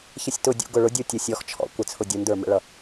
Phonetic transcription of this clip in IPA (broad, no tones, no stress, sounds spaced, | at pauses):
ç ə sʲ t ʊ dʲ ṵ ɡ ʊ ɭ ʊ dʲ u tʲ ʊ sʲ ɔ x t͡ʃʰ ɔ̰ kʷ ə t͡sʰ ʊ dʲ u n d ə˞ m ə̰ ɭ ʌ